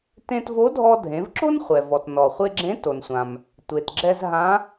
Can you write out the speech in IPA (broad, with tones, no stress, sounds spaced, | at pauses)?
t ẽ˧ t v o˧˥ dʱ ɔ˧ dʱ ẽ˩˧ v ǁ o˥ n χʷ ɛ˩ v ɔ˩ t n ɔ˩ χʷ e˧ ɡ͡ǁ ẽ˧˥ t o˩ n sʷ ã˩ m | tʷ e˩ t ɡ͡ǁ ɛ˧ z ɦ ã˧˥